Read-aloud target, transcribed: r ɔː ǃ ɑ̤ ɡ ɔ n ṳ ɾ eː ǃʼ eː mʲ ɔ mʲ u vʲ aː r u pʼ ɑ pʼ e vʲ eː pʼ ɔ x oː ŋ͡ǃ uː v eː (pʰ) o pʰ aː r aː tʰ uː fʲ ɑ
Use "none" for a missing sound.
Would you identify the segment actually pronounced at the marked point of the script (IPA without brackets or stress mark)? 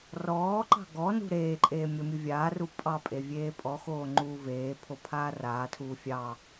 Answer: pʰ